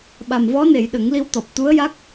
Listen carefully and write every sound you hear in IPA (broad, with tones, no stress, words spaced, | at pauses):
ɓa˨˩mvɔ˧˥ne˨˩˨j ɗə˨˩˦ŋli˧wt̪ɔ˨˩p̚ t̪u˧˥ə̯ja˦˥k̚